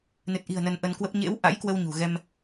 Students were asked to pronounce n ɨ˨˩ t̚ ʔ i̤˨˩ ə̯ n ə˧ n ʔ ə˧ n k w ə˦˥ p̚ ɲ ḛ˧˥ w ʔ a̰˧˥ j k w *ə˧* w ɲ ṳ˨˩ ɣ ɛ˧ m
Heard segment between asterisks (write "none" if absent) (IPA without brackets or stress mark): ə˧